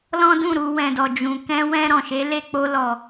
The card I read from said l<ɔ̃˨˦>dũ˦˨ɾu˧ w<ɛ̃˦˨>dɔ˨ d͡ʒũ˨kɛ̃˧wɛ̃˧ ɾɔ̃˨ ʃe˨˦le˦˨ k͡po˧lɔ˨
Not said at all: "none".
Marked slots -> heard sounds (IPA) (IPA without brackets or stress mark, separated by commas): ɔ̃˦, ɛ̃˨